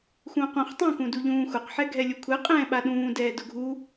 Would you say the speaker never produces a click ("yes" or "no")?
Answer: yes